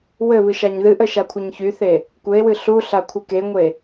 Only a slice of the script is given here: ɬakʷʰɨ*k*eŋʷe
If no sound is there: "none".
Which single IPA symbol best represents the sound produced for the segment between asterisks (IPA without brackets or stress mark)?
k